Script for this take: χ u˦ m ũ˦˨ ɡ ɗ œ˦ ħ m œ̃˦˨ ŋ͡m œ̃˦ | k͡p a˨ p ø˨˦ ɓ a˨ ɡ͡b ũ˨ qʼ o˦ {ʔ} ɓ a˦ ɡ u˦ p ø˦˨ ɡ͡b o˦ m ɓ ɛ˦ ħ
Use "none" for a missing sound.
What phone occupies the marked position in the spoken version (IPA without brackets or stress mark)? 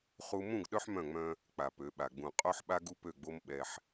ħ